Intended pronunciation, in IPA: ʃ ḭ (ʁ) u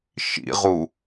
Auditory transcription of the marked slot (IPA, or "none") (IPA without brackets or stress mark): ʁ